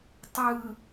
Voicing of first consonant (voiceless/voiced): voiceless